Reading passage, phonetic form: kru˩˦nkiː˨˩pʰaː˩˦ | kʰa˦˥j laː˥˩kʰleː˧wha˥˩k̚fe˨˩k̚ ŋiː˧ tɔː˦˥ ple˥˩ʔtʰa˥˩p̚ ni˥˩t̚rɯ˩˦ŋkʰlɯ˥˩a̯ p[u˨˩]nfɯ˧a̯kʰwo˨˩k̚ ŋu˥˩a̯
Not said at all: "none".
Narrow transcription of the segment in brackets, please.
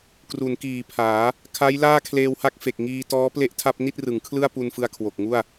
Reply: u˧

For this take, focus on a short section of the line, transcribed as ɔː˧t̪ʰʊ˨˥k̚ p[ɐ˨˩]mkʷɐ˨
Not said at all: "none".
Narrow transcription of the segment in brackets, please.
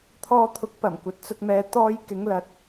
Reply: ɐ˨˩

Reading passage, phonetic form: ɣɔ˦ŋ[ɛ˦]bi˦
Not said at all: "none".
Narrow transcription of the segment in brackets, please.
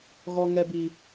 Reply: ɛ˦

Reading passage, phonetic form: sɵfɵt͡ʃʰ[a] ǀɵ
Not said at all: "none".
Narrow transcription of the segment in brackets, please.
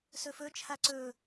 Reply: a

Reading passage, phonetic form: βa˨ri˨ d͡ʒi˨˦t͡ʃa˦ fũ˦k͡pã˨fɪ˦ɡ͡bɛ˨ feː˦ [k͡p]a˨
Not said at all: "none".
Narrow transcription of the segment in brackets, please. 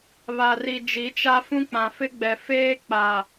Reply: k͡p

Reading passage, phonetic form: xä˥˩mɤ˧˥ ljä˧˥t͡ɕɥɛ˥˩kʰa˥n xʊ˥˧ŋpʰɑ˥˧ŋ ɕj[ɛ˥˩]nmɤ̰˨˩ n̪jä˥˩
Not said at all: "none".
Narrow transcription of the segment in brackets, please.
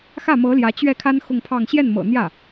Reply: ɛ˥˩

